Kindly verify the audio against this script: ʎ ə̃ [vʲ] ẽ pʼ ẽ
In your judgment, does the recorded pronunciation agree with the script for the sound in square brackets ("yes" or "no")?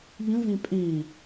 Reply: no